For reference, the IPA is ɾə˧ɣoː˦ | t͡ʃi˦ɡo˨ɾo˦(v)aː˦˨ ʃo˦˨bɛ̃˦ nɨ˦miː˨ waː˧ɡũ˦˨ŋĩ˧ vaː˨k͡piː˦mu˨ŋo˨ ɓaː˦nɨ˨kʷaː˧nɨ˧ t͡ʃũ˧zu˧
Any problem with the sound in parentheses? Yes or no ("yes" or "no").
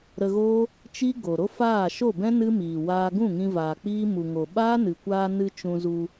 yes